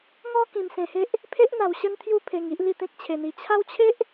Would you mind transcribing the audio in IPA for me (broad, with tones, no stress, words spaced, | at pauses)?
ŋɔ˦ kĩ˧msẽ˧he˦ʔ | pʰe˦ʔn̪a˧wɕə˦nt̪ʰju˦ pʰe˧ŋ i˦ʔli˦t̪ẽ˦k̚ t͡ɕʰe˧n̪i˧ t͡ɕʰa˦wt͡ɕʰe˦ʔ